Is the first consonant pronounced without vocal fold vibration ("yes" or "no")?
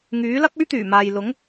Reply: no